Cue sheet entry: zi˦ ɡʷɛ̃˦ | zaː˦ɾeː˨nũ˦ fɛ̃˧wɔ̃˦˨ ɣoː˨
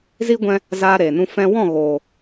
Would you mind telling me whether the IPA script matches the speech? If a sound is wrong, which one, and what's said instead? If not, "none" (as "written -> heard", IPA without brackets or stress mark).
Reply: none